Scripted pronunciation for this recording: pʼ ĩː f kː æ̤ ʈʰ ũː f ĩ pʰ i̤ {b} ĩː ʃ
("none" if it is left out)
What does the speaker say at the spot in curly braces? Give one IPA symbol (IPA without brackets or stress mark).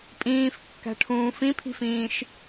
f